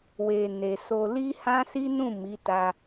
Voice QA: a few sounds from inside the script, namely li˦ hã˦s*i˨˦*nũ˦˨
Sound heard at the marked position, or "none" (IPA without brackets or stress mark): i˦